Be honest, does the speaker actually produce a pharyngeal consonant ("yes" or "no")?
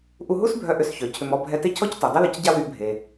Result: no